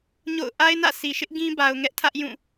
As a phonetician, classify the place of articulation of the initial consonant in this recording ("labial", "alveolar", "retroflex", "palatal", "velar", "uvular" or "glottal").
palatal